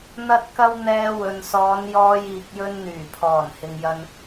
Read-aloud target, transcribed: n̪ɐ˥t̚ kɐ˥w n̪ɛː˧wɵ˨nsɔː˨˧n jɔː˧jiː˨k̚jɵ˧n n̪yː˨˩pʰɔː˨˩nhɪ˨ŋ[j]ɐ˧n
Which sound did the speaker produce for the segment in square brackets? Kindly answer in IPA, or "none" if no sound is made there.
j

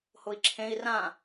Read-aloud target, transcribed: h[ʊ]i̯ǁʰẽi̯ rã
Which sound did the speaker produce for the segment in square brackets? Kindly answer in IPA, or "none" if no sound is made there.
ʊ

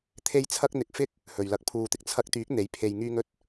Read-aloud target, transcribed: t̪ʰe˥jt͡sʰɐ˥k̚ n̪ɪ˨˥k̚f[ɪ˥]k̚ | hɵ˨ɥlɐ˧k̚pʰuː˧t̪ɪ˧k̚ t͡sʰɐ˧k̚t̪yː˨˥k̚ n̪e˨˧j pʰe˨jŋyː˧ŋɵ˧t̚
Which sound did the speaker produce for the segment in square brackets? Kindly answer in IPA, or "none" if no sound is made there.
ɪ˥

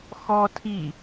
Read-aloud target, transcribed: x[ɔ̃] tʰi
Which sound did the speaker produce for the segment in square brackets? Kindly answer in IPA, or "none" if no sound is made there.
ɔ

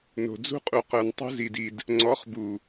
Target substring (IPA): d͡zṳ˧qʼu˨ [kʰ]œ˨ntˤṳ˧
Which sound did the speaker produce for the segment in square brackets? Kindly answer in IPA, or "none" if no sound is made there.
q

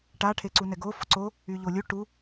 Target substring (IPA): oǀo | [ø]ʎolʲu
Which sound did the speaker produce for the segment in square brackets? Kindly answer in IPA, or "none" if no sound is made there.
y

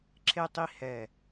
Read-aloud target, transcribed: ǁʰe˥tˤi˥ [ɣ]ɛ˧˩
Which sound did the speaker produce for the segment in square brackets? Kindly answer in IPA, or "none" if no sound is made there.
h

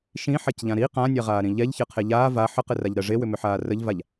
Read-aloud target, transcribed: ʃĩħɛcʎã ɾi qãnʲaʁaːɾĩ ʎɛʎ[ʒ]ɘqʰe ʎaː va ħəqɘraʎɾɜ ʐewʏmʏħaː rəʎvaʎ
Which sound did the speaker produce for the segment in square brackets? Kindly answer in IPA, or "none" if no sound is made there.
ç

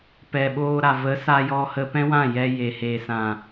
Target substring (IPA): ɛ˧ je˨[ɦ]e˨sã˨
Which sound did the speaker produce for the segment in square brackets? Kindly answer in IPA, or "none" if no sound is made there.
h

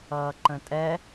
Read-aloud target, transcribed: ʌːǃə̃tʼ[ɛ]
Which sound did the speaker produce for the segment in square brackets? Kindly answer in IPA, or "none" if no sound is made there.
ɛ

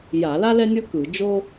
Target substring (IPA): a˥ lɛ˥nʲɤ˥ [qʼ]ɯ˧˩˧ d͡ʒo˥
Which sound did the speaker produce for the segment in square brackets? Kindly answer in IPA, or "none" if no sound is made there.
k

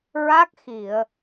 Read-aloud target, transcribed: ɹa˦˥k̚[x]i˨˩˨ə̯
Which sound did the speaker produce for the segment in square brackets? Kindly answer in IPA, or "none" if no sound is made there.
x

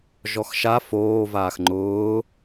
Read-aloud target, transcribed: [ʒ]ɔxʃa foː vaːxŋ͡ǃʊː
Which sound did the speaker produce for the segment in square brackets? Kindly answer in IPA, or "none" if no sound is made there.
ʒ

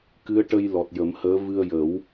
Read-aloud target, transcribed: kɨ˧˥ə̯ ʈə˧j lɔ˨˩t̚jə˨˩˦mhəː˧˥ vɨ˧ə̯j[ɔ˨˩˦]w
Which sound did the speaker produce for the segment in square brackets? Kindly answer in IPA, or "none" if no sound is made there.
ə˨˩˦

